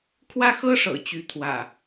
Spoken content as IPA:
kʰ w ä˦ x ɤ˦ ʂ ɤ̰˨˩ t͡ɕ y˨˦ t̪ʰ w ä̰˨˩

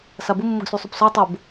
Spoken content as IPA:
s a b ʊ mː ʊ ɡ s y sˤ y p s ɔ tˤ ʊ b

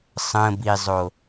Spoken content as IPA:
sˤ ə̃ b i zˤ o

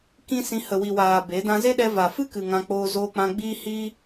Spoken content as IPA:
k ĩ˦ s ĩ˧ h ə˨ w i˨ w aː˨ b e˨˦ d ã˧ z e˦ ɗ ɛ˧ v a˨ f ɨ˦ k ɨ˨ ŋ ã˧ k͡p oː˧ z oː˧ k͡p ã˧ ɡ͡b iː˦ h iː˦

